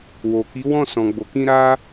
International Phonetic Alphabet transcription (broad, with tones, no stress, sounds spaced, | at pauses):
w o˨ k i˨˦ w ɔ̃˦˨ s ɔ̃˨ ɡ͡b o˨ k ĩ˧ ɾ a˦